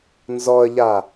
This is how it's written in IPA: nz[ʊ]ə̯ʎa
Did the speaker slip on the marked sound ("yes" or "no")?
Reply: yes